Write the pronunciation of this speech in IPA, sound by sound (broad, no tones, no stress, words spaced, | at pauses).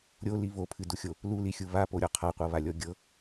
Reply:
ɾʲoli βopʰɨduxʲo | lulixʲu βapoɾʲɔ qʰaqʷɤβalʲɔ ɡʲɤ